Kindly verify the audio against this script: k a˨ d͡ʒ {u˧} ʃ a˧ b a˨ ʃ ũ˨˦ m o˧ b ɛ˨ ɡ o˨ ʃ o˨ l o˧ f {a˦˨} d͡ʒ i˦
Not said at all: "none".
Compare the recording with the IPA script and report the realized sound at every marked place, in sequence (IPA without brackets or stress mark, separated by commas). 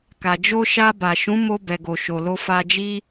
o˧, a˧